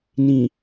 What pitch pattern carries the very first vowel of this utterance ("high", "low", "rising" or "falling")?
low